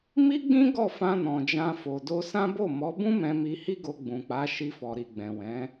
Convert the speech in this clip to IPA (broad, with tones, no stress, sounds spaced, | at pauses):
m i˦ ɡ͡b ĩ˦ ɡ ɔ˦˨ f ã˧ n ɔ̃˨ d͡ʒ ã˧ f o˨ d o˧ s ã˦ b o˦˨ m ɔ˨˦ b ũ˦ m ɛ̃˧ m i˧ h i˦ ɡ o˧ ɡ͡b ũ˨ k͡p a˨˦ ʃ i˧ f ɔ˨ ɾ i˨ ɡ͡b ɛ̃˨ w ɛ̃˨˦